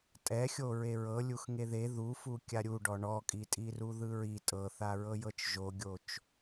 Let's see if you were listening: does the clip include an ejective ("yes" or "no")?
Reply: yes